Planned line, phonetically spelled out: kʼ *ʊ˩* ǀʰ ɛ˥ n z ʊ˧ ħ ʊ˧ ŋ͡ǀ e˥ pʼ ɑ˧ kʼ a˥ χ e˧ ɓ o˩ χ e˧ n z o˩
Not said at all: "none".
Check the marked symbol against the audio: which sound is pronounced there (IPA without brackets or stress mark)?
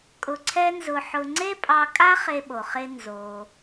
ʊ˧